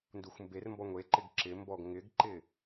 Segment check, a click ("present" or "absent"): present